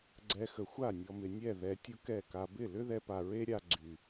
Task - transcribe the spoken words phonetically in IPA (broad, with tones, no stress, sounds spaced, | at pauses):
ɡ͡ǀ ɛ˧ x ə˨ xʷ a˦˨ nʲ ɔ˨ m ɪ˨ nʲ ɛ˦˨ ð ɛ˧ tʲ ʊ˦ k ɛ˦˨ k a˧ b ɪ˦˨ l ʏ˦ ð ɛ˧ p a˨ ɹ e˦ ɾʲ a˧ ɡ͡ǀ y˨